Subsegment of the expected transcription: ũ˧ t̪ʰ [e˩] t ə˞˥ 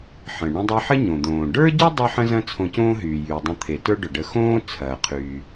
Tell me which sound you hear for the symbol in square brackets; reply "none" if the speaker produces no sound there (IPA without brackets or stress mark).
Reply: e˩